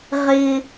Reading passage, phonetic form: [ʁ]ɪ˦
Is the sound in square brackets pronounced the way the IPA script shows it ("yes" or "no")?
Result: yes